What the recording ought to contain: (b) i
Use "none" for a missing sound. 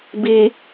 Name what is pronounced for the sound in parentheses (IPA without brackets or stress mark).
b